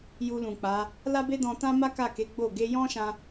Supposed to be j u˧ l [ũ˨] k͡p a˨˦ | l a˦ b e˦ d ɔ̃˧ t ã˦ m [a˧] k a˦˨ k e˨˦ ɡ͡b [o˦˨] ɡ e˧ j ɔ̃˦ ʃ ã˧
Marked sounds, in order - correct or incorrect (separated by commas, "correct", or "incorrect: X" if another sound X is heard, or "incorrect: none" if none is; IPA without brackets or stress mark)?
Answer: correct, incorrect: a˦, correct